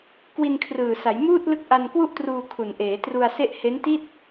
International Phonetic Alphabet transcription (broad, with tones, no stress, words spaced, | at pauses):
kwi˧nkʰrɯː˨˩sa˩˦jmuː˥˩t̚ lɯ˦˥k̚ʔa˧nkwu˥˩ʔtruː˧ kʰu˨˩nʔeː˩˦tru˧a̯se˥˩ʔ he˦˥nti˥˩t̚